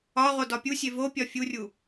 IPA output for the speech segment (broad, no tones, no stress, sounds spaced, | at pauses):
ɒ ʁ o d ɒ pʲ u sʲ e v o pʲ ɒ fʲ u rʲ u